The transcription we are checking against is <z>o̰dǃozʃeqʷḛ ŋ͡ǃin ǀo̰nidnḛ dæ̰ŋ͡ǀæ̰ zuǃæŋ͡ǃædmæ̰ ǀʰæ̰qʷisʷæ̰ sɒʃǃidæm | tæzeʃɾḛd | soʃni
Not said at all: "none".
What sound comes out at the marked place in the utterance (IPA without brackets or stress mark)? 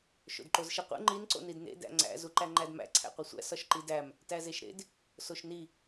ʃ